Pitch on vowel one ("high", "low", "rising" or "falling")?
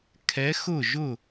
rising